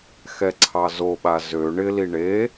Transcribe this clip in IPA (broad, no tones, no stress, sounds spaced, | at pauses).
x ɛ ǀʰ ɑ z o ɓ a z ø ɳ ɪ l i ɳ e